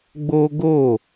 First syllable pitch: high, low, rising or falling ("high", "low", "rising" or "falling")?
high